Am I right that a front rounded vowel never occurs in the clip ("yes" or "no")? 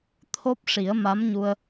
yes